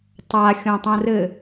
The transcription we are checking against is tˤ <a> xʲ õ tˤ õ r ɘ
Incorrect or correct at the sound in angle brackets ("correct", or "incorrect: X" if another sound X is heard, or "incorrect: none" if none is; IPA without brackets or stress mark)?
correct